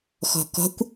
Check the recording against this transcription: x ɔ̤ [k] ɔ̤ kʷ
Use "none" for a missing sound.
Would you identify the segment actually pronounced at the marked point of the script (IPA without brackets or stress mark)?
k